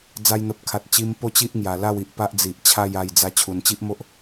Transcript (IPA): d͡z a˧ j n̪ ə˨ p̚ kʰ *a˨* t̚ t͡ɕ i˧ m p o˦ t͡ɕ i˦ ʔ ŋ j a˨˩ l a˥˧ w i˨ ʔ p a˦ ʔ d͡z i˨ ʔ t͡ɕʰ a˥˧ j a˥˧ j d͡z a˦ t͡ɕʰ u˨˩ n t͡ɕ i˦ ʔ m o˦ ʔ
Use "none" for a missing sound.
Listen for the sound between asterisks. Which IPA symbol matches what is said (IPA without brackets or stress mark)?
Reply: a˨